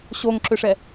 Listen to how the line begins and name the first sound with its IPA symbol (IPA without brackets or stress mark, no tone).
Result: ɕ